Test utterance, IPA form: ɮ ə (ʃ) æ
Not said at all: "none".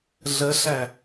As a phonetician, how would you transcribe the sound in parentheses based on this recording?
ɬ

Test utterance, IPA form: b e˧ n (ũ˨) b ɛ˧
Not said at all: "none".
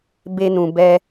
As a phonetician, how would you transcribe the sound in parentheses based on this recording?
ũ˨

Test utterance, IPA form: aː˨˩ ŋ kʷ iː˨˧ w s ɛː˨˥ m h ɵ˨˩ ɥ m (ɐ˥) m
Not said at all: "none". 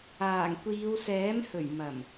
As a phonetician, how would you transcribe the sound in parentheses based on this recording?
ɐ˨˩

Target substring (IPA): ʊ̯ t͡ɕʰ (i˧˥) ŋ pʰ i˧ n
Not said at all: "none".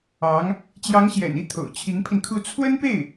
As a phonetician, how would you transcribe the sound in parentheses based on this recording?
i˧˥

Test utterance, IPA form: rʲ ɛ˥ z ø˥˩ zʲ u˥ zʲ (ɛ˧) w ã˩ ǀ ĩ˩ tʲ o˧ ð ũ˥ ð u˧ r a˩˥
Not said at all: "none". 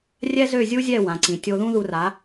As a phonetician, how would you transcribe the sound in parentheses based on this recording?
ɛ˥˩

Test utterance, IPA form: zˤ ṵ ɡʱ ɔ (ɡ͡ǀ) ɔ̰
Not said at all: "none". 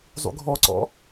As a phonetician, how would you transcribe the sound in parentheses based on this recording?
ǀ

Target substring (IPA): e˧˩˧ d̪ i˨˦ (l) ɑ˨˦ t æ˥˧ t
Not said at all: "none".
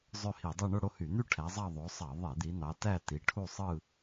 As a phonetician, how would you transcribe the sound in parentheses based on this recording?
n̪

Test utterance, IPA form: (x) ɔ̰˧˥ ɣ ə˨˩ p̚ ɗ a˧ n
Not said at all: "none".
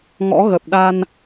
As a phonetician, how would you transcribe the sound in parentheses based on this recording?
ŋ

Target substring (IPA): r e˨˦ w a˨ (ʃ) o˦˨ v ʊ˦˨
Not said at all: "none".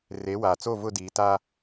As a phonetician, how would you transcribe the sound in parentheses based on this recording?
t͡s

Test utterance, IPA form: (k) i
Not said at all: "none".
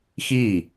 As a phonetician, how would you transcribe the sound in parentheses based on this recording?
x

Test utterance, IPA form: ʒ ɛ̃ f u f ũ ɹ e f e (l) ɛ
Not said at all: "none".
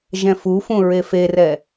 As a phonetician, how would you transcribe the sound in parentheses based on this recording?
r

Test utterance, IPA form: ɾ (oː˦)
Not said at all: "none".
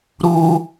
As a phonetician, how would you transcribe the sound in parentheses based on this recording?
uː˦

